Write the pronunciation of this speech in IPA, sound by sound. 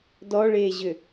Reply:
d ɔ ɭ eː ʑ ʏ

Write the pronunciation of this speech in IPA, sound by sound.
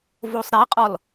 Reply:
v o sˤ ɾ i qʼ ɔ l

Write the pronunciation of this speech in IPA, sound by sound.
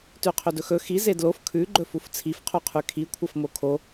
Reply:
t ʉ qʰ ɵ d ɵ x ɵ x i z e d l o f kʰ ʉ ɡ͡ǃ ɵ f u f t͡sʰ i f qʰ u qʰ ʉ kʰ i kʷʰ ɐ f m o kʰ o

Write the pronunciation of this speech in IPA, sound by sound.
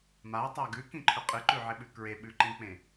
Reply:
m a tˤ a ɡ ʉ k ĩ ǃʰ ɵ qʼ ɨ ǃ ʉ ʕ e ɓ ʉ k ɹ e ɓ ʉ ǃ ĩ k͡p ẽ

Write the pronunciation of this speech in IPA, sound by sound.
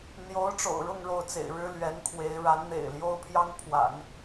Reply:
n̪ j o˧˥ ʊ̯ ʈ͡ʂ o̰˨˩ ʊ̯ ɻ ʊ˥˧ ŋ ɻ o˥˩ ʊ̯ t͡s ḛ˨˩ ɪ̯ ɻ ɻ̩˥ l ɥ ɛ˧˥ n kʰ w e˧˥ ɪ̯ ɻ a˧˥ n n̪ ḛ˨˩ ɪ̯ l j o˥ ʊ̯ pʰ j ɑ˥ ŋ pʰ w a̰˨˩˦ n

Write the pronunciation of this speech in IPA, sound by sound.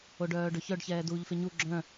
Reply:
o ɖ œː ɖ ɵ ç œ ɖ ç ɛː d uː ʎ f e ɲ u ɡ͡ǁ œ̃

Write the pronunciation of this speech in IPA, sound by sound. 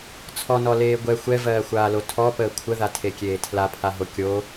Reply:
t͡sʰ ɔ n ɔ l eː ɡʷ ɛ xʷ ɛ v ɜː xʷ aː l o tʰ ɔ p əː kʷʰ ə ð a tʰ e kʲ eː tʰ l a pʰ a ɦ o kʲ o

